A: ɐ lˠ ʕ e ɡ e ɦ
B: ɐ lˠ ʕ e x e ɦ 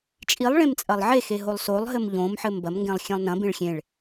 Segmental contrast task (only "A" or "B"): B